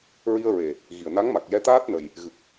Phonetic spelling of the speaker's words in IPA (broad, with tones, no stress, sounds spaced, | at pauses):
ɹ i˧ ə̯ ɹ e˨˩ | ɣ i˨˩ ə̯ n a˧˥ ŋ m a˨˩ k̚ j ɛ˧˥ t̪ aː˦˥ t̚ n ə˨˩ j | ɣ ɨ˨˩ k̚